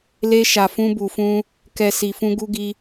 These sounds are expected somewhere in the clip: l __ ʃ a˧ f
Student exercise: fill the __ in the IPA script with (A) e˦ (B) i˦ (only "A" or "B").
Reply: A